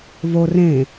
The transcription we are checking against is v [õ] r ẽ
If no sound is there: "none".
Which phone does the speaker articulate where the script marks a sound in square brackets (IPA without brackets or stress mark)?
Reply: o